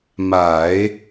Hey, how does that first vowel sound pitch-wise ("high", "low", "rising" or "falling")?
low